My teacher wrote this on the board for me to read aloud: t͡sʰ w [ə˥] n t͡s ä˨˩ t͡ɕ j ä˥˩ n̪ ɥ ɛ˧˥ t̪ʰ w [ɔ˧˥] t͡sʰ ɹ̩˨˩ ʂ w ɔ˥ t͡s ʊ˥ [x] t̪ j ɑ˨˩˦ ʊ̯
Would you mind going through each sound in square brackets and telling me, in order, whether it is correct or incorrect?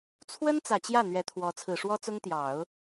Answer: correct, correct, incorrect

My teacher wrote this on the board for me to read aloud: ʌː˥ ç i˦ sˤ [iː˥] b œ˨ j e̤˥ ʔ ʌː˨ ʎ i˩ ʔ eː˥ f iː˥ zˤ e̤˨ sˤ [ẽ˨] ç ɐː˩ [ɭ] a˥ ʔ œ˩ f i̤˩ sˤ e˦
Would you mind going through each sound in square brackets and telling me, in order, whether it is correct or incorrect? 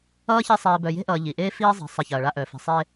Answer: incorrect, incorrect, correct

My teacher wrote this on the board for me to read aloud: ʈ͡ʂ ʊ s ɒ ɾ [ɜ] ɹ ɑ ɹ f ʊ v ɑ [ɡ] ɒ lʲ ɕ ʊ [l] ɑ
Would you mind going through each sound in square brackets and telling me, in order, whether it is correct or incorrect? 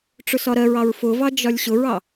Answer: correct, incorrect, incorrect

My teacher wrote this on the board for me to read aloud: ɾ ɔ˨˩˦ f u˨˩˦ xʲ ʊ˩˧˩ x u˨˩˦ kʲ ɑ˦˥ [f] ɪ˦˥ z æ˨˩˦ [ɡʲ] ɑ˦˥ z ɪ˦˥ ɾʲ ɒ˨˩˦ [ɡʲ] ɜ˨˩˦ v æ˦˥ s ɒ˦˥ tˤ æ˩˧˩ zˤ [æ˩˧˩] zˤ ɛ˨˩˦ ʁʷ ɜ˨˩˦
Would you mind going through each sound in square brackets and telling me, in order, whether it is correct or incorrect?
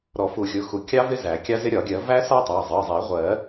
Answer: incorrect, incorrect, correct, incorrect

